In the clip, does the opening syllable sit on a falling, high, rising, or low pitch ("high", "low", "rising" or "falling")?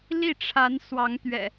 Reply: falling